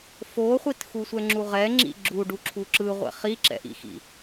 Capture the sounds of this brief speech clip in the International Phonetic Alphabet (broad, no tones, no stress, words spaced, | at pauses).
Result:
foχʷit xusʷɛŋ͡ǁuʁɛ ŋ͡ǁḭɡ͡ǁu ɖuǁʰuǁɯʁʷɛ̰ χiǁɛ̰ʔḭxḭ